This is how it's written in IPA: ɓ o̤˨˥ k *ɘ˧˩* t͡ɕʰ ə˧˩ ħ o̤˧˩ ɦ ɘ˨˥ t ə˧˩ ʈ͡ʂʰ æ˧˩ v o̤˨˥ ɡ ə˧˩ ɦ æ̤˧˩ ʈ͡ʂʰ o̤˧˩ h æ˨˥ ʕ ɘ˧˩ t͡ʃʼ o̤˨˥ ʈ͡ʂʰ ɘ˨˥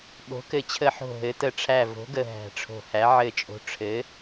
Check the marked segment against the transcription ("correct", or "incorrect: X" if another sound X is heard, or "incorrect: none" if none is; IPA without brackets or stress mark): correct